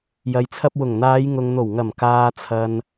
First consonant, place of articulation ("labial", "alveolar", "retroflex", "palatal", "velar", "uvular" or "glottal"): palatal